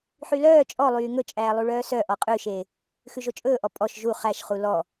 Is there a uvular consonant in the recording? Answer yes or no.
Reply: yes